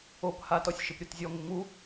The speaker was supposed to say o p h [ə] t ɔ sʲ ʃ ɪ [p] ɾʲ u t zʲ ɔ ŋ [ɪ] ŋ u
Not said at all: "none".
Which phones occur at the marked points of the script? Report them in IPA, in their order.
a, p, ɪ

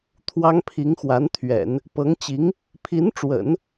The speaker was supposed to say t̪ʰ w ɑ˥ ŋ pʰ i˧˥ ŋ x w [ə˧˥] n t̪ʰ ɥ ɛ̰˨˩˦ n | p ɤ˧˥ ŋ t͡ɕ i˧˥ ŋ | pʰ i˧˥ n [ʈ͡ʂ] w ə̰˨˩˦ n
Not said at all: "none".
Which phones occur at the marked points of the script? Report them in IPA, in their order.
a˧˥, ʈ͡ʂ

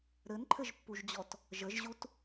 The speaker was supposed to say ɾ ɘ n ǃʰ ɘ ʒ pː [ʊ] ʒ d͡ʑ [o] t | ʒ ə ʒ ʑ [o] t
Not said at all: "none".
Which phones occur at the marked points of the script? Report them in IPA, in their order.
u, ɔ, u

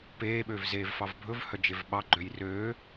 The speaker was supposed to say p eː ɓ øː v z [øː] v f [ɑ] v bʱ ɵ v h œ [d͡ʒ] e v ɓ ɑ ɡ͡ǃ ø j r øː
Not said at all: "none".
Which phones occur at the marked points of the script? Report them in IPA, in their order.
eː, ɑ, d͡ʒ

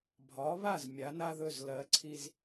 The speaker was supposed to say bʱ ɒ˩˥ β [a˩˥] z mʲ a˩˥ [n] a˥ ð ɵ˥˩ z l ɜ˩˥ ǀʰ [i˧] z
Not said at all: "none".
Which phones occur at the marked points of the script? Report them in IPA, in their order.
a˥˩, n, i˧

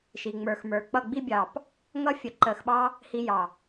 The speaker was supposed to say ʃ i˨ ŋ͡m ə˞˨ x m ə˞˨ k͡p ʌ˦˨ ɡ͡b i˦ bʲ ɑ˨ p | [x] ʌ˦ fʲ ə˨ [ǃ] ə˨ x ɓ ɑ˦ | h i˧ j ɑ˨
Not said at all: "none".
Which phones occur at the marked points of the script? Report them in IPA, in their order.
ŋ, ǃ

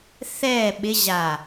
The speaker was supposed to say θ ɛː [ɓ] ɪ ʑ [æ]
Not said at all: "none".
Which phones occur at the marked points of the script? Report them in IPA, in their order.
ɓ, a

